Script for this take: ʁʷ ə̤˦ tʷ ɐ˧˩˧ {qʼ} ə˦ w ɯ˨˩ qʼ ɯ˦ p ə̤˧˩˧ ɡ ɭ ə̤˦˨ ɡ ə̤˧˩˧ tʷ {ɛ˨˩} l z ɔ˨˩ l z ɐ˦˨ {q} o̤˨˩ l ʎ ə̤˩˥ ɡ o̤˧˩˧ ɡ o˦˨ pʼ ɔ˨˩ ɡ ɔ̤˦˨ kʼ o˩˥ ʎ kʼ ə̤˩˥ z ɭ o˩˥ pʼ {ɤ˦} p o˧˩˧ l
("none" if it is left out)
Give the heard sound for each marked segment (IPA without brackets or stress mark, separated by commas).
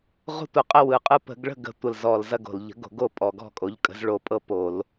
qʼ, ə˨˩, ɡ, ɤ˦